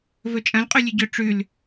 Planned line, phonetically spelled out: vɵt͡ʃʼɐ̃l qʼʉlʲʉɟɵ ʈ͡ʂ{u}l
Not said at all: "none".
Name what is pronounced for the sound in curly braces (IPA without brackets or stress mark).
ʉ